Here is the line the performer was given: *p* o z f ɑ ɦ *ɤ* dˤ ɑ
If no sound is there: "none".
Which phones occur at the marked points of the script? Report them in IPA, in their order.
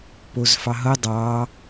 p, ɤ

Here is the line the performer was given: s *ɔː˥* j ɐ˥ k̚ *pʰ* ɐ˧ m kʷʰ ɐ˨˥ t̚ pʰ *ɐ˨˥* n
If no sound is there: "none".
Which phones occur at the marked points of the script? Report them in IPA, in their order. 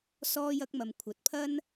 ɔː˥, m, ɐ˥

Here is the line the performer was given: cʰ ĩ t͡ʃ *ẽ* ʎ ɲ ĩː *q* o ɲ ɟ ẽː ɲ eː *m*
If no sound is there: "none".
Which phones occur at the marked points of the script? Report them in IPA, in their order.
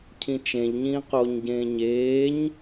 ẽ, q, ɲ

